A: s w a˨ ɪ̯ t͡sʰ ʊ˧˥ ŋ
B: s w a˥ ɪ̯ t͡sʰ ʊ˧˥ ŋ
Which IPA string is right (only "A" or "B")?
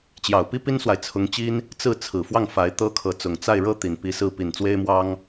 A